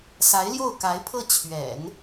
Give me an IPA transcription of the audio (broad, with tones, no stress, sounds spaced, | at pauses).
s a˧˥ ɪ̯ l j o˥˩ ʊ̯ k a˧˥ ɪ̯ pʰ ɤ˥˩ t͡ɕʰ ɥ ɛ̰˨˩˦ n